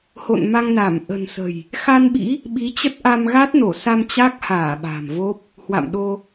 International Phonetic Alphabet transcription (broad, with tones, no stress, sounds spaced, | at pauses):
h o̰˧˨ n m a˧ ŋ n a˧˩ m ʔ ə̤˨˩ n s ə̤˨˩ j | x a˧ n ɓ ḭ˧˥ | ɓ i˨˦ t͡ɕ ə˦˥ t̚ ʔ a˧ m ɣ a˦˥ t̚ n o˧˩ s a˧ m t͡ɕ a˦˥ k̚ h aː˧˩ ɓ a̤˨˩ m v o˦˥ p̚ | h w a̰˧˨ m ɗ o˧